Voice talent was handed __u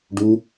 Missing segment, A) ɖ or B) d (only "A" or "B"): A